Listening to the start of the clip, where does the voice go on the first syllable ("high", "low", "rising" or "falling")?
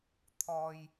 low